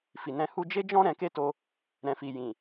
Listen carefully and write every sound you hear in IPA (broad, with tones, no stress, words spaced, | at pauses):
fi˨nɛ̃˧hu˦ d͡ʒe˦d͡ʒɔ̃˦ ɾɛ̃˧ke˦to˧ | ɾɛ̃˨fi˨ jĩ˨